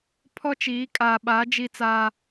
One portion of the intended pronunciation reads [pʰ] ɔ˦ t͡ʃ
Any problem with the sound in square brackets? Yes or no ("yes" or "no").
no